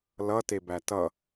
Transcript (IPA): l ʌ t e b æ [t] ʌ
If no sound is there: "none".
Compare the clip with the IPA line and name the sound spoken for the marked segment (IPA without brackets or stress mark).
t